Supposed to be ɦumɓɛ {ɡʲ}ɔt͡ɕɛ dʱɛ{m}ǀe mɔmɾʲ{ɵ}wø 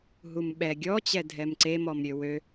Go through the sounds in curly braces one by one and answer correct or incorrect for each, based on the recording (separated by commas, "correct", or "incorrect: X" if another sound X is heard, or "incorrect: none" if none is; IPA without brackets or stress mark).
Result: correct, correct, incorrect: ø